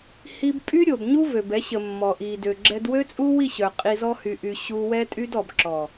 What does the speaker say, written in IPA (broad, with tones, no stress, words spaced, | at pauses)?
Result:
hi˧b pʼy˦ɾʲo˨bɲu˦vø˨b ɛ˨˦ɕə˨ mːɔ˨ʔi˨ dø˨ɡ͡ǁɛ˧d wø˦t͡sʼu˦wi˦˨ɕœ˨ qʼi˧zɔ˦ hy˧ʔy˧ ɕu˧wɛ˦tʼy˦d ɔ˨bǁɔ˨